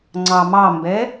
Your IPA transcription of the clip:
ŋ͡ǀ ɑ m ɑ m b ɛ

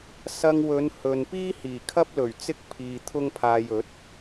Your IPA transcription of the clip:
s ɐ˧ ŋ w ɵ˨˧ n h ɵ˨ n p iː˥ h iː˨˩ kʰ ɐ˥ p̚ l ɵ˨˩ ɥ t͡s ɪ˥ k̚ pʰ iː˨ t̪ʰ ʊ˥ ŋ pʰ aː˧ j ɵ˨˥ t̚

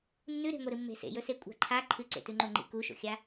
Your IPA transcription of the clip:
nː ʉ ɾ e̤ ŋʷ e ɾ ɨ mː e̤ s ḛ j ɵ s e kʷʼ a̤ ǃʰ a ǃʰ ɨ ǀ ḛ t ʉ ŋ͡ǃ o ŋ͡ǃ ḭ k u ʃ o̰ xʲ a

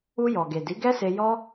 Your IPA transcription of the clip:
u˧ j ɔ˨ ɡ e˨ d i˨˦ ɡ ɛ˦ s e˧ j ɔ˦

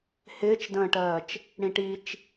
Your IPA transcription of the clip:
h ɪː t͡ʃ d ə̃ː ʈ ɜː t͡ʃ | ɽ ĩ ʈ i t͡ʃ

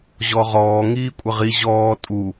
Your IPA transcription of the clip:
ʑ ɔ ʁ ɔː ŋ iː kʷʼ ə ʁ i ʑ ɔː tʼ u

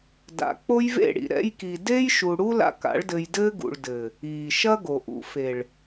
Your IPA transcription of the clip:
d a̰˨ k͡p o˦ j v ḛ˦˨ ɽ ḭ˨ ɾ ɛ̰˧ j k i˨ d eː˦ j ʃ u˨ ɽ u˦ l a̰˧ k a̰˨˦ ɭ d ɘ˧ j d ɘː˦ ɡ ṵ˨ ɭ d ɘː˨ | iː˨ ʃ ɐ˦ ɡ o˨ ʔ ṵ˨ f e˨ ɭ

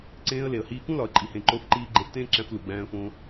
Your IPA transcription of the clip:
ǀ ẽː˧ ə̯ l e˨ ə̯ h iː˧ k ũ˦ l ɒ˧ ə̯ ǃʼ i˧ h ẽ˧ ǃ o˧ f ǃ iː˧ ɡ͡ǃ e˧ f t ẽː˦ ǁ æ̃˧ f l u˨ ɡ͡b æ̃ː˧ ə̯ f õ˧

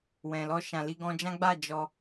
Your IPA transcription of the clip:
w ɛ̃˨ l ɔ˧ ʃ ã˨ l i˧ ɡ ɔ̃˧ d͡ʒ ã˦ ɡ͡b a˦˨ d͡ʒ ɔ˧

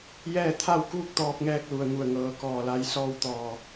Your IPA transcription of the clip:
j ɛː˥˨ t̪ʰ a˥˨ w k uː˥˨ k̚ t̪ ɔː˧ p̚ ŋ ɛː˧ k̚ l u˩ ə̯ ŋ u˧˩ ə̯ ŋ ɤː˧ k ɔː˧˩ l a˧˥ j s ɔː˥˨ w t̪ ɔː˧˩

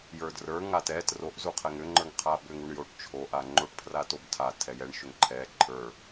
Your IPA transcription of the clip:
j ə˞ d r ə˞ ŋ a t ɛ t r o ʔ z u qʰ ɛ ŋ ʏ ŋ͡ǃ ə˞ ŋ qʰ a b ʏ ŋ u ɳ j o ʈ t͡ʃʰ o ʔ a ŋ͡ǃ o ʈ pʰ r a t o b tʰ a tʰ ɛ j ɛ ɳ ʃ ʏ ŋ ǃʰ ɛ ǃʰ ə˞

